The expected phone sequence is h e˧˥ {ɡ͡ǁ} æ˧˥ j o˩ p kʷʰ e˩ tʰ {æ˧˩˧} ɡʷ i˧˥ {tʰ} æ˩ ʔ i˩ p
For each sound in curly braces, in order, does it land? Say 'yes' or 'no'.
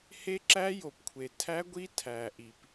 no, no, yes

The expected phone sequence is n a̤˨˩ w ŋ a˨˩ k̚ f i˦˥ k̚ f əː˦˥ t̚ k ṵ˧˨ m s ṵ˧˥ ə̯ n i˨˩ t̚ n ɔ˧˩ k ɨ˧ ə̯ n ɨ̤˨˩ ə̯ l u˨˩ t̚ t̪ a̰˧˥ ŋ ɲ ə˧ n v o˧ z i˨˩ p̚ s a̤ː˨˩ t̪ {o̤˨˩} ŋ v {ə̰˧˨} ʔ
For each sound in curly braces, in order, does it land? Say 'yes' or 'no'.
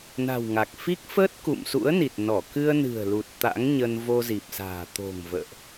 yes, no

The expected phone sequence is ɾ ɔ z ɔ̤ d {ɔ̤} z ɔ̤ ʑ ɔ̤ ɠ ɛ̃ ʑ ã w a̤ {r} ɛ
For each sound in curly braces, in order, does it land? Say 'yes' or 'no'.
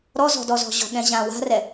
no, yes

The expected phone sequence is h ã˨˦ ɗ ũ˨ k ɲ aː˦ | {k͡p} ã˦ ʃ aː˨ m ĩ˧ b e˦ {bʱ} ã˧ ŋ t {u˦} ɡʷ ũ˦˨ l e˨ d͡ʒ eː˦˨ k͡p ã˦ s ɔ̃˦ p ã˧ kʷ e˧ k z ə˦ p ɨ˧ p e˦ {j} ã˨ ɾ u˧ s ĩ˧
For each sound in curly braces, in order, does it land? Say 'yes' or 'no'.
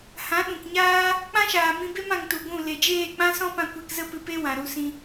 yes, no, no, no

